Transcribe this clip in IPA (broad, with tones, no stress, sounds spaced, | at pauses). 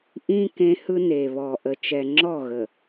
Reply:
ʔ ĩ˦ k ẽ˦ h ɯ˦ n e˨ β ɔ˨ ʔ ə˨ t͡ʃ ɛ˨ ŋ͡ǁ ɔ˦˨ ɣ ə˨